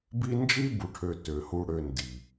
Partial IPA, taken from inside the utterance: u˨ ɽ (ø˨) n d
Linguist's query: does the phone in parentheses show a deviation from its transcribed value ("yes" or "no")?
no